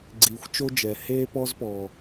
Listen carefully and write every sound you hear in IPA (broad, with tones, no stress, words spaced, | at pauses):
ɡ͡ǀiː˧xʷt͡ʃo˥d͡ʒɛ˧ heː˥pɔ˥zpɔː˧